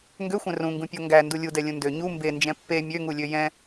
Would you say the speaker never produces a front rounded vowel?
no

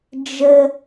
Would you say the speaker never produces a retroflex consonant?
yes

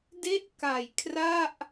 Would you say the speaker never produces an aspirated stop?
no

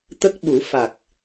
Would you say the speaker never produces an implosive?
no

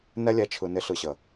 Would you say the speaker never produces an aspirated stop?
no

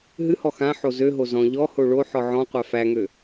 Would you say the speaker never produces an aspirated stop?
yes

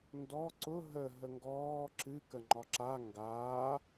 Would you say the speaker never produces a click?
no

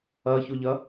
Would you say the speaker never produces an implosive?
yes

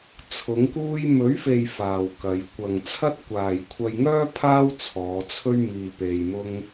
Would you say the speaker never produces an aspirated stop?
no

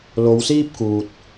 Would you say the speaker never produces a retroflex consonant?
yes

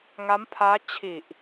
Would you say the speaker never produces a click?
yes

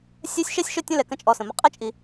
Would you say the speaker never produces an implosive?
yes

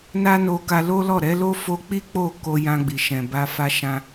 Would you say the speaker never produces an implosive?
yes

